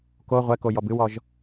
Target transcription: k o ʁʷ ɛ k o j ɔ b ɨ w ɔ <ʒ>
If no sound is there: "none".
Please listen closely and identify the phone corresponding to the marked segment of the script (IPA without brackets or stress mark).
ʒ